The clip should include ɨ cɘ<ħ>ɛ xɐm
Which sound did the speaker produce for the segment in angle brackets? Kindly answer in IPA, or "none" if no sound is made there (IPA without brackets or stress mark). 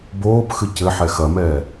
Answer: ħ